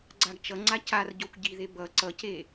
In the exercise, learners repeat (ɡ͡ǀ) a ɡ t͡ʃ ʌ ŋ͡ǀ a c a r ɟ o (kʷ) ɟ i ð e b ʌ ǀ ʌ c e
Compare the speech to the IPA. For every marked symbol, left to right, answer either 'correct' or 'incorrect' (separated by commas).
correct, correct